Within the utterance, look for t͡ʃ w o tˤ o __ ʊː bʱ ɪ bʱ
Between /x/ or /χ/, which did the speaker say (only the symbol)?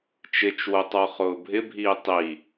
χ